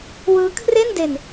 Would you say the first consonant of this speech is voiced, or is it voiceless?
voiced